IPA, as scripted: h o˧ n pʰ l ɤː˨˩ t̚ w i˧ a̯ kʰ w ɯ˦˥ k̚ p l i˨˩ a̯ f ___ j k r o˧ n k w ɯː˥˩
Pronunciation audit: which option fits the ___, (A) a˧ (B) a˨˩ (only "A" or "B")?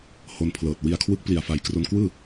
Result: B